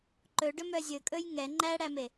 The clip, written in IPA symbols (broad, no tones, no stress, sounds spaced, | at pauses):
ǃ ɵ ɖ ɵ m œ zʲ ɵ kʼ ɵ j ŋ ɛ ŋ͡ǃ æ ɽ æ m e